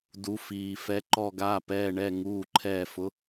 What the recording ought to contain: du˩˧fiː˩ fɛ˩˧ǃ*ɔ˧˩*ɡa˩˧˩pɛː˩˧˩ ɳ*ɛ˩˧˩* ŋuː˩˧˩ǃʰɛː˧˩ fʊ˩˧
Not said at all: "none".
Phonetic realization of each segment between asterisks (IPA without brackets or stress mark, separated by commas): ɔ˧˩, ɛ˩˧˩